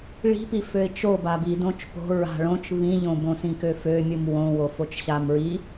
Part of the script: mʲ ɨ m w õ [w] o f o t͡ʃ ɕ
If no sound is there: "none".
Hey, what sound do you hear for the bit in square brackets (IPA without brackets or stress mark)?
w